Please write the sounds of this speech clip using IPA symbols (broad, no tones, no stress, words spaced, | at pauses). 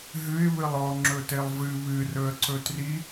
ɦɨɪ̯ βɨlˠɔ ŋ͡ǁɵtelˠvɨ βɨ rɵə̯ǀɵtri